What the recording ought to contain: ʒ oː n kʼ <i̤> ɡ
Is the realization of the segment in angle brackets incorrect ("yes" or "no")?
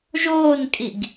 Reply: yes